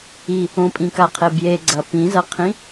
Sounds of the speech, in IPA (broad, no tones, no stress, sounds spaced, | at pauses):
i | õ pʼ ĩ k a qʰ e b j e ɡ͡ǀ ɐ p ĩ z ɐ qʰ ĩ